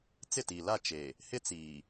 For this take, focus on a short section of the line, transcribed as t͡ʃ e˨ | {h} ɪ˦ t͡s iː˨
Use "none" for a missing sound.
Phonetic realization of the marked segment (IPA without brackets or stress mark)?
h